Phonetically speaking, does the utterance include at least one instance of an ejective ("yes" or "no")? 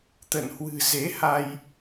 no